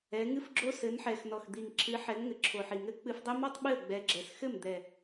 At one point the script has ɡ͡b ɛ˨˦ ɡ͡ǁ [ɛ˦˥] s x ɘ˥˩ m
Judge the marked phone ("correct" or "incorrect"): incorrect